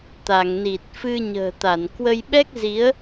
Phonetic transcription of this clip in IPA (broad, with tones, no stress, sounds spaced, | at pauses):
t̪ a˧˩ ŋ n i˨˩ t̚ f ɨ˧ ɲ ə̤ː˨˩ t̪ a˧˩ n k w ə˧ j ɓ ɛ˦˥ k̚ z i˨˦ ə̯